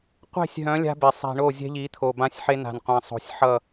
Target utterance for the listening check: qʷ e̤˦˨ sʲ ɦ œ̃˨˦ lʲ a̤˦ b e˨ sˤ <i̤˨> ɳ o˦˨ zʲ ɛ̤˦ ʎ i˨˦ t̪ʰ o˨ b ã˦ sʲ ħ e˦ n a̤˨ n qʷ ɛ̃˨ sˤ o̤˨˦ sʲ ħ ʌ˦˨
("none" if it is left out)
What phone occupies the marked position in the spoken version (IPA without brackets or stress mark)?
i̤˨